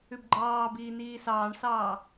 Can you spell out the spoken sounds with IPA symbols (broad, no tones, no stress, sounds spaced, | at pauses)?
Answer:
ʉ b ɡ͡ǃ ɑː b iː n iː s ɑː ɳ s ɑː